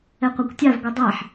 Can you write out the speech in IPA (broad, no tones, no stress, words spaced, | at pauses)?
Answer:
ɛqʷakʷtʲav ɡʷɛdˤaħ